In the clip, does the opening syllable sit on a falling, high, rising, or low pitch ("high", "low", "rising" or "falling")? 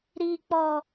low